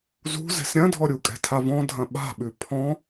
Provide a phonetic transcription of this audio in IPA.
zṳ zɛ̤sɾʲɐ̃dʱɔ ɾʲukʼɛ̤tʰavɔ̃ dʱɐ̃ɓa̤ɓʉ pʰɔ̃

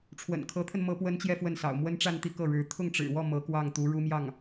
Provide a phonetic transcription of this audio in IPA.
ʈ͡ʂʰwə̰˨˩nkʰɤ˧˥t̪ʰə˧n mɤ˥pwə˥nt͡ɕjɛ˥˧fwə˥˩n sɑ̰˨˩ʊ̯mwə˥nʈ͡ʂa˥˧nt̪i˥˧ kɤ˥˩ɻɻ̩˧˥ t̪ʰʊ˥˩ŋʈ͡ʂɻ̩˨˩wɔ˥˩ mɤ˧˥ kwɑ˥˩ŋt̪u˧˥ ɻu˥mjɑ˥˩ŋ

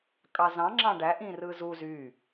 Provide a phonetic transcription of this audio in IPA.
kʼɑzɑ̃ ŋ͡ǁɑ̃ɖæ ʔĩrɯzu zy

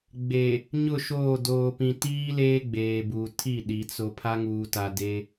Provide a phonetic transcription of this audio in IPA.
ɡ͡be˨ | ɲʊ˦˨ʃoː˦˨ doː˨pĩ˨ tiː˦ leː˦ɡ͡beː˨buː˨ tʰi˦˨ ɗi˨˦ t͡so˦ pʰa˦ŋuː˨ta˨de˦

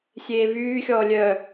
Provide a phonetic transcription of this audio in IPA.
sʲeːvyːxʲɔː lʲœ

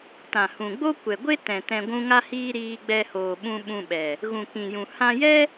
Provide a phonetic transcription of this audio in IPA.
tã˨hũ˨ɡ͡bo˦ kʷɛ˨ɡʷe˦ tɛ̃˨ tɛ̃˧ɡʷũ˦ŋa˦hiː˦ ɾiː˧ɡ͡bɛ˧hoː˨ɓũ˧ ɓũ˧ɓɛ˨ | ɣũ˨kĩ˨jũ˨ hã˧jɛ˦

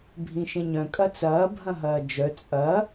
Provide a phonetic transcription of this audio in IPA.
bʱĩʃẽɲœ̃ kʼɐt͡sɐː bʱɐ̃ɦɐːd͡ʒœ t͡sʼɐ

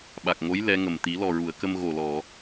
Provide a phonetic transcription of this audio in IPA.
ɓa˨˩k̚ŋo˧˥j lɛ˧˥ŋə˨˩m t̪i˨˩˦lɔ˨˩ɹu˨˩˨ə̯kə˧m ɣo˨˩lɔ˨˩˨

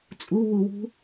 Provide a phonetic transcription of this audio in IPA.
t͡sʼuβuwṳ

